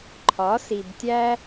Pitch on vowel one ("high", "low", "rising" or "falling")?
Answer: rising